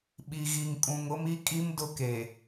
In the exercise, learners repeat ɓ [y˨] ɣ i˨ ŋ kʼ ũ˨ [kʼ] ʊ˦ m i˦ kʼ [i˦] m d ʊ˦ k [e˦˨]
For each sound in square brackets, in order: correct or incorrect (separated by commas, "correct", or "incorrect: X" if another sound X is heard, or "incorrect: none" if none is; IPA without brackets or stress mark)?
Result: incorrect: i˨, incorrect: ŋ, correct, incorrect: e˨